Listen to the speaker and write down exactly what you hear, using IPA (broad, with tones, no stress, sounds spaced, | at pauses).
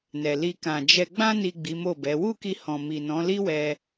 n ɛ˨ l i˧ k ã˨ d͡ʒ ɛ˧ ɡ͡b ã˧ n i˨ ɡ͡b i˨˦ m o˦˨ b ɛ˨˦ w u˦˨ k i˧ h ɔ̃˨ m i˨ n ɔ̃˨˦ l i˦ w ɛ˧